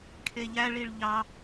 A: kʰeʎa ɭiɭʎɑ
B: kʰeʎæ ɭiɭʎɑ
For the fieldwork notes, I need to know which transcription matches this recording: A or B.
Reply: B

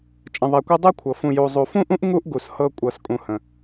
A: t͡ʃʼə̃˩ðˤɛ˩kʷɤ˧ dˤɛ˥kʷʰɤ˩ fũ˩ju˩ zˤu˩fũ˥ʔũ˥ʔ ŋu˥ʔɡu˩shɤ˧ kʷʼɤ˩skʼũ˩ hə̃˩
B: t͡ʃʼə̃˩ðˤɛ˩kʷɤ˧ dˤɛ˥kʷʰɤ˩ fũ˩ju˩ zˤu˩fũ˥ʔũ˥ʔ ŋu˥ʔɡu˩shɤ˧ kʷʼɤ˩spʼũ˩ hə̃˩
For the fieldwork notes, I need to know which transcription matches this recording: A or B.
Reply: A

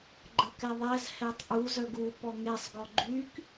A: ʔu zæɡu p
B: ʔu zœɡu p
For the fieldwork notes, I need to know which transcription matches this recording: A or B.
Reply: B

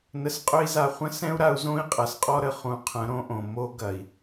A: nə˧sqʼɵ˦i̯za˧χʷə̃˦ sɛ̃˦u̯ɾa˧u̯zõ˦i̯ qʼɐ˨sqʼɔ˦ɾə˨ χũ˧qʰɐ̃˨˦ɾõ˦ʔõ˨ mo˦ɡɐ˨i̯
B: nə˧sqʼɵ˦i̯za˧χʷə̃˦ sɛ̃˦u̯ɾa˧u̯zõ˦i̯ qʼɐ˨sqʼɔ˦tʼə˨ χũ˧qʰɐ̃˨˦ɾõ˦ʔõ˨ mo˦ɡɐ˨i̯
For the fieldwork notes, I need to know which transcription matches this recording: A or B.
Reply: A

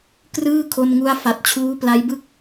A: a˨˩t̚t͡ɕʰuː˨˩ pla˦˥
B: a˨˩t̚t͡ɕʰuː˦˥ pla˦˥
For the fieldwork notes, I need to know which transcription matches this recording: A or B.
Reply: B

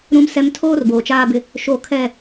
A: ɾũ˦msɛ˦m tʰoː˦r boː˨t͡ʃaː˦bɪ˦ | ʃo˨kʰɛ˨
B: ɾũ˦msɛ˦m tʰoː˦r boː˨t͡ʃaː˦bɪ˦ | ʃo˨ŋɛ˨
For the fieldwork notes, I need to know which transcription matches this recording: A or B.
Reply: A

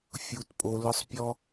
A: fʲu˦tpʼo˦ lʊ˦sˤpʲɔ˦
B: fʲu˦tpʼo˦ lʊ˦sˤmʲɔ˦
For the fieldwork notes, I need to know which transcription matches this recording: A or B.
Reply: A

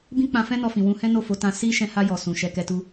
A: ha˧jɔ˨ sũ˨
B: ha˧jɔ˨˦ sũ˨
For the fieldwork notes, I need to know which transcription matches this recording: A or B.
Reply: A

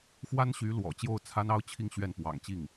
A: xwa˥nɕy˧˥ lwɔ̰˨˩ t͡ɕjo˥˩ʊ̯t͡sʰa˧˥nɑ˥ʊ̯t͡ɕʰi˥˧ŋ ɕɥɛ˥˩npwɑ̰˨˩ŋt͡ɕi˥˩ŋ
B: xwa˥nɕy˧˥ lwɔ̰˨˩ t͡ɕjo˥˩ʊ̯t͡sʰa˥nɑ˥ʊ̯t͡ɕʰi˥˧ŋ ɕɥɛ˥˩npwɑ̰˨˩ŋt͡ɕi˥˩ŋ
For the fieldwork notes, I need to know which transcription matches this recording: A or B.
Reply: B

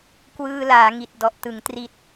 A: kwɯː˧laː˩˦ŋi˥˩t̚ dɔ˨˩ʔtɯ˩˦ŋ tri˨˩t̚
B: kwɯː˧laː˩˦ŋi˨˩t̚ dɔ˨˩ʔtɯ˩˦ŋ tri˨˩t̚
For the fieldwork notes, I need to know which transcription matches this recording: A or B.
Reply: B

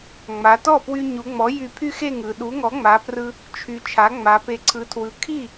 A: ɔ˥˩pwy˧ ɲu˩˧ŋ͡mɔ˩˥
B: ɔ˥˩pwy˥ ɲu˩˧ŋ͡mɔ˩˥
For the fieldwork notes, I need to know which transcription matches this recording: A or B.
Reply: A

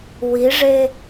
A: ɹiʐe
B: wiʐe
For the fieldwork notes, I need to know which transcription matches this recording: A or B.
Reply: B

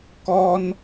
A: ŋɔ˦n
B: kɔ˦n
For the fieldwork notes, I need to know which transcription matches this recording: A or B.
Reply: B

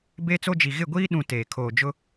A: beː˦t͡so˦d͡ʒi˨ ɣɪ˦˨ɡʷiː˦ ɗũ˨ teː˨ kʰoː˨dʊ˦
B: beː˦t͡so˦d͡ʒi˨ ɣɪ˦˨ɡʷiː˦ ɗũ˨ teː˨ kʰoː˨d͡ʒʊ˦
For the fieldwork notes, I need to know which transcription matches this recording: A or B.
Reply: B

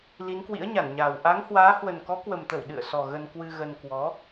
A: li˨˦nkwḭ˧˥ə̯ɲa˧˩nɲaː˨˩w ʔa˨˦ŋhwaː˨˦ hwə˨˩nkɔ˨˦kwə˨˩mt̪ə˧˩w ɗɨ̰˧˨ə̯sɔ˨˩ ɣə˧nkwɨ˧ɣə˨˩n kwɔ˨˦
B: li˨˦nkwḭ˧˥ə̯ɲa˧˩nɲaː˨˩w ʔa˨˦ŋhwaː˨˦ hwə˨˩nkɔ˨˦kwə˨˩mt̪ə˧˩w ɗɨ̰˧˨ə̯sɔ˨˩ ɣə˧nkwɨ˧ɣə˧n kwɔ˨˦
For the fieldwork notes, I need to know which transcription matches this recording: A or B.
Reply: B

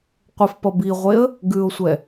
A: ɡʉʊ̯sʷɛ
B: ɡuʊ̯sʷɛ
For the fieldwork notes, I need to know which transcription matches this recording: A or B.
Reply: A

